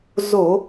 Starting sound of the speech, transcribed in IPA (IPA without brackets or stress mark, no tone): z